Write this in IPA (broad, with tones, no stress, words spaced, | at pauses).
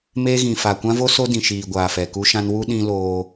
meː˦ɣĩ˨ fa˨kʷã˦vo˦ so˦dĩ˨ʃiː˨ ɡʷaː˨fɛ˨ku˦ʃã˦n wu˦ ɗĩ˦loː˦